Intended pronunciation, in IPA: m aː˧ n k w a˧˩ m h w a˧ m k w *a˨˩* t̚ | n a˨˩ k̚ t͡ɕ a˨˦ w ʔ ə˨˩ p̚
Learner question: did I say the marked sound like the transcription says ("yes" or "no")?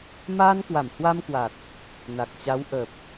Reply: yes